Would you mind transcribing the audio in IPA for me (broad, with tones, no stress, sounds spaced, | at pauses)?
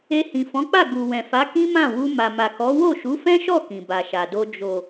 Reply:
e˧ h ĩ˨ f ɔ̃˨˦ k͡p a˦˨ ɡ u˨ w ɛ̃˨ f a˨˦ k ĩ˦ m ã˦˨ w u˧ m a˨ m a˨ k ɔ˨˦ w o˦˨ ʃ u˨˦ f ɛ̃˦ ʃ ɔ˦˨ k ĩ˨ b a˨ ʃ a˨ d o˧ d͡ʒ o˨